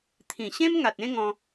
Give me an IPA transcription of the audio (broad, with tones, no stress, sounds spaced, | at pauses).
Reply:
t̪ʰ ĩ˨˩ ɕ ẽ˦ m ŋ a˨ t̚ ẽ˦ ŋ ɔ̃˧